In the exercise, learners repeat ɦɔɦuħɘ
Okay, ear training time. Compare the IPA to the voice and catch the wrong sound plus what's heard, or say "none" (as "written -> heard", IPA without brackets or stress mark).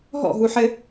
ɔ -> ɔ̰